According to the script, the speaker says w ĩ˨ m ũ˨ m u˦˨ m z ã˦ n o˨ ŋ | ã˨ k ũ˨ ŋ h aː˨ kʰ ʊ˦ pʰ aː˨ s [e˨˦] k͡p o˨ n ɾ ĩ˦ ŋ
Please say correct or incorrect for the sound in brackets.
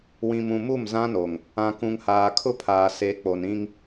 correct